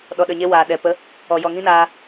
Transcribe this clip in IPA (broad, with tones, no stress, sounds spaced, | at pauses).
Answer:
ɗ ɔ˨ ɗ ə˨ ɲ e˧ w aː˨ ɗ ɛ˨ p ə˨˦ | ɔ˨ j ɔ˨ ŋ ĩ˦ n aː˧